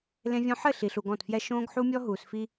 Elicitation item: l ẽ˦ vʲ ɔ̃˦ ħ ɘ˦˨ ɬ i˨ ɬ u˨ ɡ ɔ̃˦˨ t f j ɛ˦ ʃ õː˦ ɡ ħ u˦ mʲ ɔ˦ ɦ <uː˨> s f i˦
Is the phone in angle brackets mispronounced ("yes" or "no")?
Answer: no